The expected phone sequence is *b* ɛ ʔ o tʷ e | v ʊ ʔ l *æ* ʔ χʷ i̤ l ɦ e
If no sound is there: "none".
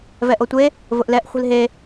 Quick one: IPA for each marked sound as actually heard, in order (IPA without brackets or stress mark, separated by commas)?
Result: v, ɛ